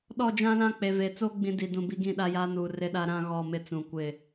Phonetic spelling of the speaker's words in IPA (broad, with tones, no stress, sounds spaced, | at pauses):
ɗ ɔ˦˨ d͡ʒ ã˦ l ã˦ k͡p e˨ v e˨ t͡s o˦ ɡ͡b ĩ˦ d i˨ d ũ˨ b i˦ ɡ ĩ˦˨ ɗ a˦ j aː˦ n uː˨ r ɪ˦ ɗ a˦ ɾ ã˦ ɣ ɔ˦˨ m ɪ˦ t͡s ũ˨ kʷ ɪ˦˨